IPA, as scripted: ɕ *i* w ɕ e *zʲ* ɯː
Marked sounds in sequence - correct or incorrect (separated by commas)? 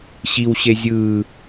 correct, correct